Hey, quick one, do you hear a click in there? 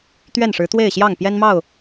no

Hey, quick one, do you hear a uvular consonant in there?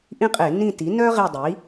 yes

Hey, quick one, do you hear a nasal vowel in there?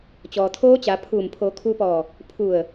no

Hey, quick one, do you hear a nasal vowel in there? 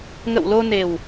no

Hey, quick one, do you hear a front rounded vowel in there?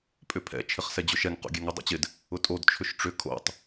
yes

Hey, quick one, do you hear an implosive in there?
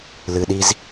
yes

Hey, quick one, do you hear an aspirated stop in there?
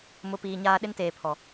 yes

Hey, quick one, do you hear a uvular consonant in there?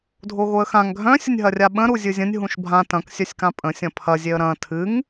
no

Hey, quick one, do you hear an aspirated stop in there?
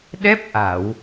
no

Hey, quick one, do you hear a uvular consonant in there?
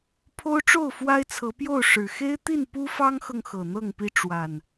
no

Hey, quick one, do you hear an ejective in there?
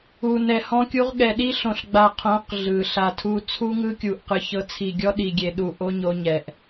no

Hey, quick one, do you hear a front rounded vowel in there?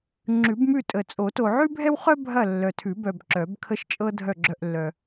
yes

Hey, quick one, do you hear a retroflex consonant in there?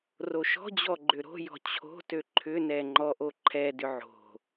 no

